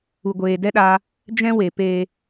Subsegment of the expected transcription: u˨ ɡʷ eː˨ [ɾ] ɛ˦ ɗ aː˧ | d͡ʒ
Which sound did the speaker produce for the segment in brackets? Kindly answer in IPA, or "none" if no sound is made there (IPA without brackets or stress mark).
d